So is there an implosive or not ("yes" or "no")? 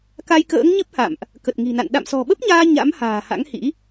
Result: yes